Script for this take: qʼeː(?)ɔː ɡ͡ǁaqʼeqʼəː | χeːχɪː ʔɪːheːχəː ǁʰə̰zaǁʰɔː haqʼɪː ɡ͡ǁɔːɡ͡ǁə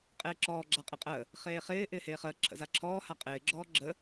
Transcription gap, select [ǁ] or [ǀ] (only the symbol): ǁ